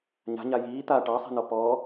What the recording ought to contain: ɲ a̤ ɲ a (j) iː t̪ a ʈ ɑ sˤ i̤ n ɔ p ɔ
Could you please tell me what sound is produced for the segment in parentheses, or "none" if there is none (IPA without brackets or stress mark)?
j